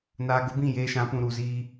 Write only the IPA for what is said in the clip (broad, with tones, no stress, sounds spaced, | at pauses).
n aː˨ ɡ ʊ˨˦ b ĩ˦˨ j eː˦ ʃ ã˨˦ p ũ˨ ɾ u˨ z iː˦